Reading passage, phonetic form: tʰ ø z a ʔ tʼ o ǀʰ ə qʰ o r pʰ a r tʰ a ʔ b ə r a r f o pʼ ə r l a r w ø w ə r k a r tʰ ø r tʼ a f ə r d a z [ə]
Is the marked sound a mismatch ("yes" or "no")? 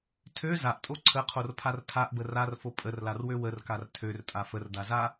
yes